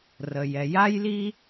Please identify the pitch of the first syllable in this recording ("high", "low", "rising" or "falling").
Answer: low